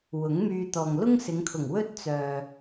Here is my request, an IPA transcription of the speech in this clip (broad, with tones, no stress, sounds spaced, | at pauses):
w ʊ˨˥ ŋ m yː˧ t̪ ɔː˨ ŋ l ʊ˥ ŋ s ɪ˨˧ ŋ kʰ ʊ˨˩ ŋ w ɵ˥ t̚ t͡s œː˨